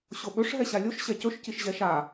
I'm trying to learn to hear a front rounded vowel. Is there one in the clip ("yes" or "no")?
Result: no